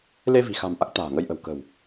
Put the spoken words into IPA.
le˧vi̤˨˩xa̤˨˩m ʔa˦˥k̚t̪a̤ː˨˩ŋə˧j ʔə̤˨˩wkə̤˨˩w

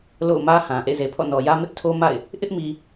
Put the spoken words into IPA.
lo̰˦˨ʊ̯mä˦hã˨ ʔḛ˦˨ze˨pʰɔ̰˦˨ nɔ˨jä˦ mɪ˦ʔtʰo˦ma̰˦˨ɪ̯ | ʔɪ˦ʔmi˨

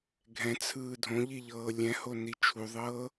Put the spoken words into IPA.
ɡʱɛ̃t͡sʰɯː dʱõʎiʎɤː lʲɛ̃honi t͡ʃʰuðˤɤː

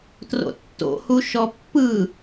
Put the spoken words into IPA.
tro̰tːo̰hu ʃɔpːɯ

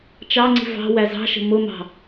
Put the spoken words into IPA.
t͡ʃɑŋ͡ǀi̤ vɑ̤ wæzɑ̤ʃə̤ mʊmɑ̤

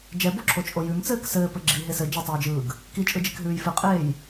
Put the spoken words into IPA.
d͡ʒɛboǁʰot͡ʃʼo jʉmt͡sɘːk sɘːpɘ ɡ͡ǁiɦes ɘ d͡ʒetˤɯːd͡ʒɯːɡ | kit͡ʃʼɯd͡ʒikɦʉːj fɘqʼeːj

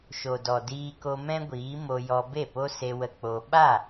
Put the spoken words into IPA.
ʃo˨dɔ˨ diː˧ko˧mɛ̃˦ɡʷiː˨˦ mo˧jɔ˧be˦˨po˦ se˧wə˧ k͡po˧ ɓa˦˨

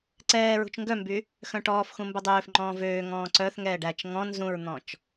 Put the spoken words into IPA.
ǀɛː ɹṳt͡ʃŋɡœmby | xœ̃ʈɔːfxũ mbɵdˤøːfŋ͡ǃɔ̃ː vøːŋɔ̃ː ǀœθŋɛːɖ æt͡ʃ ŋɔ̃ nzũɹn̪ɔ̃t͡ʃ

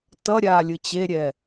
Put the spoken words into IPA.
tʌɾʲaːlʲɯ t͡ɕeɾʲɛ

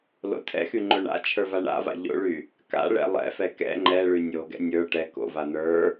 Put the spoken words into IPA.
lo̰tʰɛ̰xy ŋ͡ǃoɳa̰t͡ʃʰə˞ vaɳa̰va̰ ʎo̰ɭy | ka̰ɭɛ̰ lˠɛ̰fɛ kɛ̰ ŋ͡ǃɛɭy nʲoɡɛ̰ nʲə˞ ʈɛ ko̰va n̪ə˞

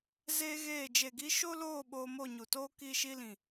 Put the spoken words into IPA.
zeː˦ɣeː˦˨ d͡ʒe˨ɡi˧ ʃo˦loː˦˨ ɓoː˧mo˦˨ɲu˨toː˦ ki˧ʃi˧lĩ˨

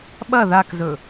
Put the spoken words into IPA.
ɓɐ ðakzɵ

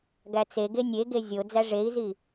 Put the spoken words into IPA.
ɡæt͡seɡe nʲeɡe zʲo d͡zæʐei̯zi

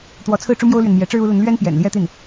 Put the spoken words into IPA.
t̪wɔ˧˥t͡sʰɹ̩˥˩ ʈ͡ʂu˥mjo˥ʊ̯lɥɛ˨n mjɛ˧˥ʈ͡ʂɻ̩˥ u˧˥lə˧˥nlɥɛ˥n pjɛ̰˨˩n ljɛ˥t̪i˥˩n

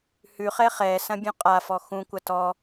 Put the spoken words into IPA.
hʉχɛ χɛsɐ̃bʲũ qʼafɔ xũkʷɐ tɔ

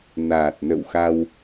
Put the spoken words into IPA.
naː˨˩t̚nə̰˧˨wxa˧w

